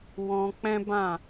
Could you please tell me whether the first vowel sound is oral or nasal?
nasal